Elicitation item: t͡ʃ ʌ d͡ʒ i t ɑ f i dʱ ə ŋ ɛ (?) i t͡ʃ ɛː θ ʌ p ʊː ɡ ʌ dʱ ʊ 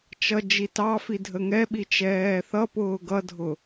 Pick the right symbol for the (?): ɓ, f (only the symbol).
ɓ